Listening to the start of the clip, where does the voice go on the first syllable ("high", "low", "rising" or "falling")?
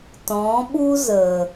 rising